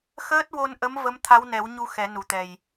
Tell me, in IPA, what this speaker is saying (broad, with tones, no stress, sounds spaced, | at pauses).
x əː˦˥ t̚ w o˧ n ʔ ə˧˥ m v ə˧˥ m t̪ʰ a˧˥ w n ɛ˨˩˦ w ɲ u˧ x ɛ˨˩˦ n u˨˩ t̪ ɛ˨˩ j